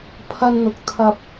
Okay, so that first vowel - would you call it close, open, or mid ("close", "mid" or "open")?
open